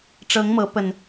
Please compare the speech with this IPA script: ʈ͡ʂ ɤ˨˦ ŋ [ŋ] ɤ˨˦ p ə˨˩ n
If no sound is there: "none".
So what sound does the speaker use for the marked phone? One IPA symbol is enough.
m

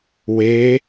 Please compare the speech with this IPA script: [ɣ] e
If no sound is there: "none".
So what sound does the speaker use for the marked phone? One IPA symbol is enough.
w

